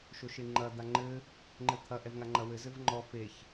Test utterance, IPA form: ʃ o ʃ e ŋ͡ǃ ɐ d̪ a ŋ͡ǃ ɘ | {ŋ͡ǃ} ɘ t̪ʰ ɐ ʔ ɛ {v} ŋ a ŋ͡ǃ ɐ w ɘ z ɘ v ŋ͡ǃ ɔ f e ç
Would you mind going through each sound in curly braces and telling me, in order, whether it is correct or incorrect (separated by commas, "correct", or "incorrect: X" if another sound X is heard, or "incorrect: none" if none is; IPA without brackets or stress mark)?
correct, correct